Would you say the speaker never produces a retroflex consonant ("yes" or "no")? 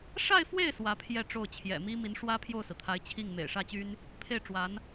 no